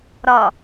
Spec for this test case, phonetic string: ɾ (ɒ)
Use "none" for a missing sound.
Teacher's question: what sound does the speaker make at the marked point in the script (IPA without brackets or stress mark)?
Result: ɒ